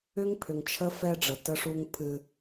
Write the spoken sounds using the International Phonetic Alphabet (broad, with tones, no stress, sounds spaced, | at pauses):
ʏ˦ ŋ pʰ ʏ˨ ŋ t͡ʃʰ ə˦ f ɛ˦ ɖ͡ʐ ə˨ t ə˦ ʂ u˦ ŋ pʰ ɨ˦